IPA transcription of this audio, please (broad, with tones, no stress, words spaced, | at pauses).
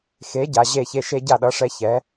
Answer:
xe˩˥ ɟa˩ ʑe˥˩çe˧ ʃe˧ ɟa˥˩ɗʌ˩˥ʂɛ˧ çɛ˩˥